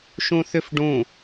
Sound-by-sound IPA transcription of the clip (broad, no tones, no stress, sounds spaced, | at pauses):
ʃ ũ θ ʏ f ɖ ũ